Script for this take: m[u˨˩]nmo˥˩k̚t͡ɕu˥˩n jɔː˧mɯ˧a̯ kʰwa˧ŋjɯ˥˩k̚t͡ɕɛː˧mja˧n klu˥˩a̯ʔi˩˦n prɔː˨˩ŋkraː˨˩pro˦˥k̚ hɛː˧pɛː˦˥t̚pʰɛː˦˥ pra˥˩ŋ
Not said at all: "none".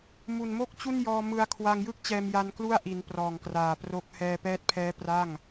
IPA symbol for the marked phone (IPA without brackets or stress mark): u˨˩